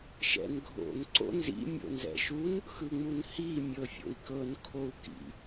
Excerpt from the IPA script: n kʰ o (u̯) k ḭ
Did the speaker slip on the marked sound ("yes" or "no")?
no